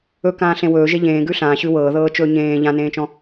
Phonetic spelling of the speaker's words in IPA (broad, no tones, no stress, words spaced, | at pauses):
ɵkãːɬẽ wɵːʒe ʎẽːɡʉ ɬãːɕʉ wɤːðɤːt͡ʃɵː ɲẽː ʎãnẽːt͡ʃɔ̃